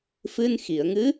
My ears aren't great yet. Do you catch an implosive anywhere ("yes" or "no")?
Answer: no